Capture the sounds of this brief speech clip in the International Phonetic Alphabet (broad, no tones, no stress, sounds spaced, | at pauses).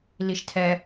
l i ʃ tʰ ɛ